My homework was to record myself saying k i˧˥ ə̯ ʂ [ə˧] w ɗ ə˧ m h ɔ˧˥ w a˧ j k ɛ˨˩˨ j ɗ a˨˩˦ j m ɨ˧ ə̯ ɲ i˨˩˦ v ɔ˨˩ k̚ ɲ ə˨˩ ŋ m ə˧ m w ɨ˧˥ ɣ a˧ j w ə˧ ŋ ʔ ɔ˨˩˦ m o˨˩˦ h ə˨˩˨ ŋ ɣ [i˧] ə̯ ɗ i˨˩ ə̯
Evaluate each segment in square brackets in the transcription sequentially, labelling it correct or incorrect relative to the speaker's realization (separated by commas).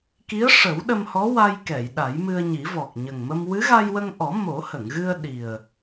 incorrect, incorrect